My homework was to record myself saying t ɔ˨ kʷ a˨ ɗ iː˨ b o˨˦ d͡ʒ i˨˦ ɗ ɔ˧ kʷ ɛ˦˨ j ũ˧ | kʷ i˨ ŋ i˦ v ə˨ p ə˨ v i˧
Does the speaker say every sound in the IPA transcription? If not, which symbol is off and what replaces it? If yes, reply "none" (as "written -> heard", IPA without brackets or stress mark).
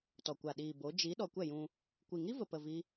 none